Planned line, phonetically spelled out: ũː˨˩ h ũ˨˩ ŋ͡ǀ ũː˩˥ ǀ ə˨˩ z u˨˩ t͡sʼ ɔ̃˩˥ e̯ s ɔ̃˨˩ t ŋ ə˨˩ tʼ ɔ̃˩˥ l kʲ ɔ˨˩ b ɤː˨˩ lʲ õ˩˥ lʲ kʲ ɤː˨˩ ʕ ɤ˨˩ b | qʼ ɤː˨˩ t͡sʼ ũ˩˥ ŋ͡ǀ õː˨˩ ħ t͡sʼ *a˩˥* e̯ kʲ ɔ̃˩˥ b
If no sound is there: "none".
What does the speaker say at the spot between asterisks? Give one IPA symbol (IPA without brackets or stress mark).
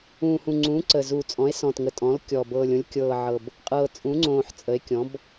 ə˩˥